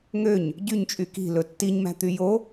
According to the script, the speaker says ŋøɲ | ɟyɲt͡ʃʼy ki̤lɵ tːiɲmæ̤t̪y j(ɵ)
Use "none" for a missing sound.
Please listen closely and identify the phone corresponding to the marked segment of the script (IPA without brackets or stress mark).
o